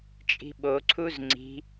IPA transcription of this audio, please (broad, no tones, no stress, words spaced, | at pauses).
t͡ʃʼi̤ɓo ǀʰuzŋ͡ǀi̤